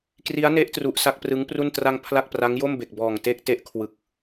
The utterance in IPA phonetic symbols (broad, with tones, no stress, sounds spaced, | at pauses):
k r i˦˥ a̯ n e˦˥ ʔ t r u˨˩ ʔ s a˥˩ k̚ p r ɯ˦˥ ŋ p r u˥˩ n t r a˧ ŋ pʰ l a˥˩ k̚ p r a˦˥ ŋ j o˥˩ m b e˨˩ k̚ b ɔː˨˩ ŋ t e˥˩ k̚ t e˥˩ ʔ kʰ w ɯ˨˩ k̚